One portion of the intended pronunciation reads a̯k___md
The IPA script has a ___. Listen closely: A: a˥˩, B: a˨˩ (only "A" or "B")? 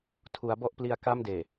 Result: A